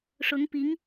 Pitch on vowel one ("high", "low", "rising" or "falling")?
rising